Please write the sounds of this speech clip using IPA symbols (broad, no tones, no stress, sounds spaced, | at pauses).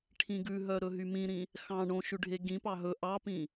ʈʰ ĩ ɡ ʉ ɦ œ ɾ ɵ ɦ y m ĩ ɾ ĩ | x ɑ̃ ɳ õ ʃ ʉ ɖʱ e ɡ ĩ p ɑ ɦ ɵ ʔ ɑ p ĩ